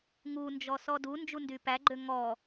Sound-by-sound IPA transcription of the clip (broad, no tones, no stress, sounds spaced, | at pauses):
ŋ u n d͡ʒ ɔ s ɔ d u n d͡ʒ u n d y p æ ɡ͡ǃ ø ŋ ɔ